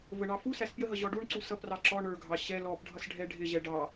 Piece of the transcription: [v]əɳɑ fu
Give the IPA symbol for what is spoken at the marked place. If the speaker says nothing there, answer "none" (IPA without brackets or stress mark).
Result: v